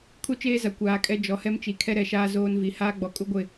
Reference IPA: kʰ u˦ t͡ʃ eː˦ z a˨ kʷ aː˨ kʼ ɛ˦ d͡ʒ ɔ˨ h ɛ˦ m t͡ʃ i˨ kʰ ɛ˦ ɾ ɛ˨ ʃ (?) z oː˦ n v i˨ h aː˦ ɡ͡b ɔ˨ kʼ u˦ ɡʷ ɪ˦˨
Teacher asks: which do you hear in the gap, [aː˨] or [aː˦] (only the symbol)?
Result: aː˦